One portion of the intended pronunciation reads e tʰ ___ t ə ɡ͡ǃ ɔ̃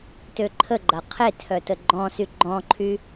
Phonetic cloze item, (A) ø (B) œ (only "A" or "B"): B